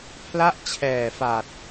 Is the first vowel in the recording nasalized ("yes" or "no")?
no